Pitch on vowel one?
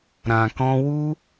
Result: low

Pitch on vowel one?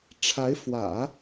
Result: rising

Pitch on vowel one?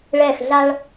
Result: falling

